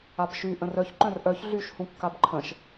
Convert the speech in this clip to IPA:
abʃy ʔə̃rœç ǃœ̃rʔœç ɮyʃ hũkːabǃʰə̃ʃ

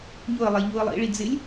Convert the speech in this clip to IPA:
ɲʊə̯lˠe ʎuə̯lˠḭɭi d͡zɪlʲ

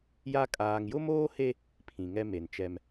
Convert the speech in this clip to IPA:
ja˦ kʼaː˨ŋjʊ˦moː˦he˦ | pʰĩ˨ŋɛ˦ me˨nt͡ʃɛ˦m

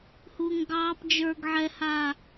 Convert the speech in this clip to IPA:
huːŋɡɑːp d͡ʒə˞ɡ ʕɛhaː

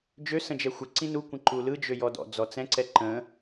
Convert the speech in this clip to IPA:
d͡ʒø sə̃d͡ʒɛxʷə ǀĩnu kʷə̃ǃulɯ d͡ʒøjɔdɔ̰ d͡zɔt͡sɛ̃ ǀɛǃə̃

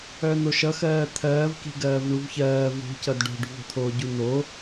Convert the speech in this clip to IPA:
œn̪oʃʌ xɜːt̪ʰɜːvki̤ ɡɜːvɳuvçɜː vṳcʌd ɖo̤ɖṳvo̤t̪ʰoː ɟun̪o

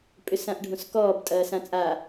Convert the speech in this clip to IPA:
pʼʏsãʔɖʱõskɔːb tʼɐːsãt͡sʼa

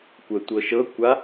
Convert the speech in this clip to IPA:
kʷətʷɤ ʃɤkʷa

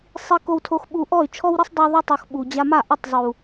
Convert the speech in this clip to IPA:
sˤi˧ko˧wtʰo˧x ɓu˧ ʔɔ˦˨y̯t͡ʃʰɔ˦wɾɘ˦sˤ dˤo˧ðˤu˧tˤu˨x ɓu˨d͡ʑa˧ ma˦˨ʔɘ˦˨tˤ zˤu˨

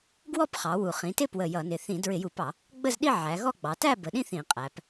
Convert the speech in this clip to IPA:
ɡwɔ˥˧pχɑ˩˧wu˨˩ χĩ˩˧tɪ˥˧ pwə˨˩ jʌ˧˩˧nɪ˨˩ θĩ˧˩˧ dɹɪ˧˩˧ju˧˩˧pɑ˧˩˧ | ɡ͡bə˥˧zɗi˥˧ ʕæ˩˧ɣɔ˥˧ɡ͡bɑ˩˧ tæ˥˧ bə˩˧ɗĩ˥˧θ ĩ˧˩˧qʼæ˩˧p

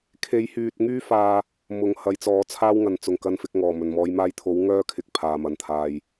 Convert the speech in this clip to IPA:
kʰe˨˥jhyː˨t̚ŋyː˥faː˧ | mʊ˨˧ŋ hɐ˨˥jt͡sɔː˨˥ t͡sʰaː˥wŋɐ˨nt͡sʊ˨ŋ kɐ˧nfɪ˧k̚ŋɔː˨˩ mɵ˨˩nmɔː˨˧jmaː˧jt̪ʰo˨˥w ŋœː˥kʰɪ˨k̚ pʰaː˨mɐ˨nt̪ʰaː˧j

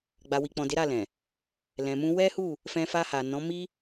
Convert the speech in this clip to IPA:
ɡ͡ba˨wi˨k͡pɔ̃˨ de˨˦ɾa˦˨lɛ̃˨ | lɛ̃˨mũ˧ wɛ˦hu˦˨ | fɛ̃˧fa˧ha˨ nɔ̃˨˦ mi˦

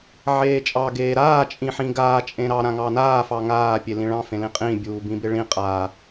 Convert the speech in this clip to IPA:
ʕeːt͡ʃʼɑ ɡeːɾaː t͡ʃʼĩħĩɡaː t͡ʃʼẽɾɑ ɾãŋɑnaː fɑŋaː pʲelĩɭɑ̃ fẽlĩqʼĩ bʲuːbĩbɪɭĩ qʼa

